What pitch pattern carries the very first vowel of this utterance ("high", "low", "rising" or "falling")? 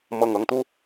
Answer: low